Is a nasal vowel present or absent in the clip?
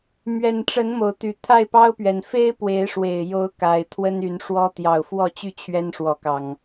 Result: absent